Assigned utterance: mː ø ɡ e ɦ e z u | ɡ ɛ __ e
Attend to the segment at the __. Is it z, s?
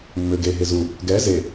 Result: z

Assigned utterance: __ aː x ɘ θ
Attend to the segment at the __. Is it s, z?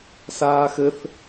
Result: s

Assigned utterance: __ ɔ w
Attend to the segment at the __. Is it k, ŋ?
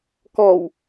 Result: k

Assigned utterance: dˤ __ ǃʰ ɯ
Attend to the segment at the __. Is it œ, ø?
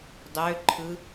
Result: ø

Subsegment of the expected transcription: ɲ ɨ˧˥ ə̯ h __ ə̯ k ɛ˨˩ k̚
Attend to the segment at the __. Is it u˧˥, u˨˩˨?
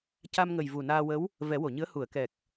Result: u˨˩˨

